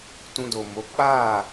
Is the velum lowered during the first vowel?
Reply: yes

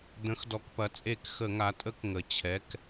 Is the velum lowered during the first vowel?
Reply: yes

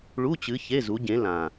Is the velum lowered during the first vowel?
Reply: no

